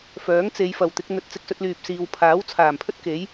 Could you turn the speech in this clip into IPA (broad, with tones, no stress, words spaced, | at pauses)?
fœː˨˥ŋt͡se˨˧j fɐ˨wt̪ɪ˨˥k̚ n̪ɵ˨t̚t͡sɪ˧k̚sɵ˧t̚lyː˨p̚ siː˨wpʰaː˨˥wt͡sʰaː˨˩mpʰɵ˥t̚ ke˨˥j